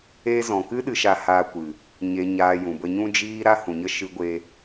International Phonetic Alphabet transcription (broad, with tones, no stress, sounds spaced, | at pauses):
e˧ z ɔ̃˨ k ɨ˦ ɗ ɨ˧ ʃ a˧ h aː˧ kʷ ɨ˨ | ɲ e˨ ɲ aː˨ j ũ˨ b ə˧ ɲ ũ˦ d͡ʒ iː˦ ɾ a˦ h ũ˨ ɲ ə˦ ʃ ɨ˧ ɡʷ e˧